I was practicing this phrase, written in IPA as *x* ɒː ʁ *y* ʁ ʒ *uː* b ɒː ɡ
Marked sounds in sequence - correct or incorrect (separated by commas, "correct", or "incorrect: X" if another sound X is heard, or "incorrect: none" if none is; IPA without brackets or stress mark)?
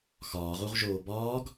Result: correct, incorrect: u, incorrect: oː